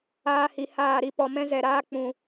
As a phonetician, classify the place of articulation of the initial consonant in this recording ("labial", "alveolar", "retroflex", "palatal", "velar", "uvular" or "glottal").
glottal